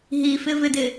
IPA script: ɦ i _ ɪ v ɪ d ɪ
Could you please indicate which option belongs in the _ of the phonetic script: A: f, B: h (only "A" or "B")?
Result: A